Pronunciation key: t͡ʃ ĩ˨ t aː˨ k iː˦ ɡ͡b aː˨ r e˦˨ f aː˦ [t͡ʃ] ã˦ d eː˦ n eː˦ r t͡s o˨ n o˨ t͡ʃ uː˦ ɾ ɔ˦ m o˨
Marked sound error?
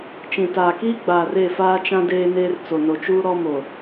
no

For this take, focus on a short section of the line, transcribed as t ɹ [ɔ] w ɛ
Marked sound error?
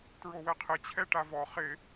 yes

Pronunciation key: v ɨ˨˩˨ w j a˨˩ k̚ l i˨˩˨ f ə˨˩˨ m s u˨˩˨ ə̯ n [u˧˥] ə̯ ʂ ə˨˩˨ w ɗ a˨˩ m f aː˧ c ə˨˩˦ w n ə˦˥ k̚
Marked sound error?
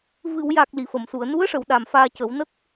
no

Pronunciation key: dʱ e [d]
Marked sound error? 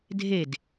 no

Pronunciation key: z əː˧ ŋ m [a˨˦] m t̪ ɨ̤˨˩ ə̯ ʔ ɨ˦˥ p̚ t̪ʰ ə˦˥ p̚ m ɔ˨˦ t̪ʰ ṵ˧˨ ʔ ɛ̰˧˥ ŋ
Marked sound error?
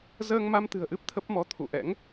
yes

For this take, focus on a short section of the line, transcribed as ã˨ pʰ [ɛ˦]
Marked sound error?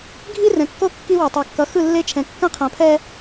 no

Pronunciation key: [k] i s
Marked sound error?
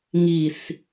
yes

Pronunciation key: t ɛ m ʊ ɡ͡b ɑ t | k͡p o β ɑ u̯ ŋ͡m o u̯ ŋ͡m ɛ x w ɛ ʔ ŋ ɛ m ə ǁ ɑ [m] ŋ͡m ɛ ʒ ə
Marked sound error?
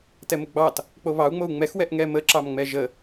no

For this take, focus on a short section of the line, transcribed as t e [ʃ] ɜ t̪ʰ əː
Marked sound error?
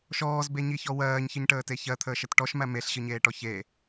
yes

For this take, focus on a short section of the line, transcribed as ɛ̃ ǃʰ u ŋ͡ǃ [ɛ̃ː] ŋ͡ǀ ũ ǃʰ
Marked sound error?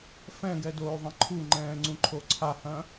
no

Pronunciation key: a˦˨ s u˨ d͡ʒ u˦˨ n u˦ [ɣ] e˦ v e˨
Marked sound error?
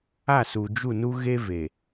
no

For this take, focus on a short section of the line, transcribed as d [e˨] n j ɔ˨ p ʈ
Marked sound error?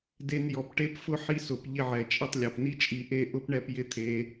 yes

